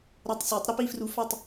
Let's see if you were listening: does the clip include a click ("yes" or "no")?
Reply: no